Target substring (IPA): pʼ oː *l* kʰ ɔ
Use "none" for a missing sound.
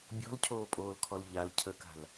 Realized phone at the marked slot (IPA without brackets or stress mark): l